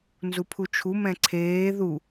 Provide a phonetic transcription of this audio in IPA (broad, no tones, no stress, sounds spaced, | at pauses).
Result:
n z u pʰ u t͡ʃʰ u m ɛ̃ ǀʰ eː ð u